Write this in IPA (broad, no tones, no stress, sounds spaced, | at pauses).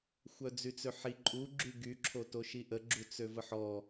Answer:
xʷ œ d͡z y t͡s ø ħ i ǃʼ u ɡ͡ǁ y ɡ y ǁʰ o t o ʃ i ʔ ə ɡ͡ǁ u t͡s ø v ə ħ ɔ